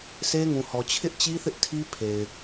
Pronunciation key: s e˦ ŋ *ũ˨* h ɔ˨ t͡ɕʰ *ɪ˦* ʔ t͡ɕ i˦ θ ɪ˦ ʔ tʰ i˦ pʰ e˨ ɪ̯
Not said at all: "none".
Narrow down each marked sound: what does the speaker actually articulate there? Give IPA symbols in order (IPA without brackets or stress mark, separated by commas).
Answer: ũ˨, ɪ˦